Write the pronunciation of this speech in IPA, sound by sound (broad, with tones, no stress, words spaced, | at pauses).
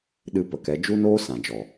ɗɨ˧pə˨kɛ˨˦ d͡ʒu˦noː˦ sã˨d͡ʒɔ˨